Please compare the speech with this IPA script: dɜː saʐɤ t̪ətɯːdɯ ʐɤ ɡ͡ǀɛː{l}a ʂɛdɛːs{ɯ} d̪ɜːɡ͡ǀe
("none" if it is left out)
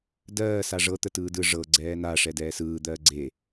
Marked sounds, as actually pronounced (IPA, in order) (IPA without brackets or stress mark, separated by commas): n, ɯː